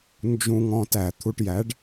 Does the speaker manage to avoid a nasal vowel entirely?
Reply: no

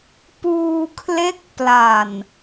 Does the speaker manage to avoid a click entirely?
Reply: yes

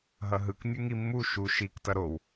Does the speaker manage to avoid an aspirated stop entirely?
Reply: yes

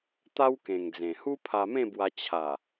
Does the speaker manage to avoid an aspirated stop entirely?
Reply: no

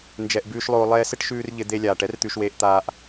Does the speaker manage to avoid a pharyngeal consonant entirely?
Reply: yes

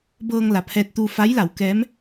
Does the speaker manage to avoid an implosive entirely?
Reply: yes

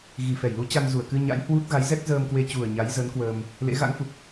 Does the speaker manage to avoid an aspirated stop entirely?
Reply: yes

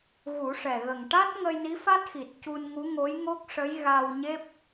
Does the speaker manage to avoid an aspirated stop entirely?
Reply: yes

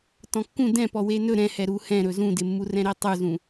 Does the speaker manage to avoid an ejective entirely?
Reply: yes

